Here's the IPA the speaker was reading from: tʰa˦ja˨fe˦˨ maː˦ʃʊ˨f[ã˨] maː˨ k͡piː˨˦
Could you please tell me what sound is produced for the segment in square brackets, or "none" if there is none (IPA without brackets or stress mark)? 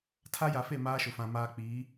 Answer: ã˨